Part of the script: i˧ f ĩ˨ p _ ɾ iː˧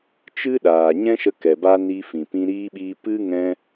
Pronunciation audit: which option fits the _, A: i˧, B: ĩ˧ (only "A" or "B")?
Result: B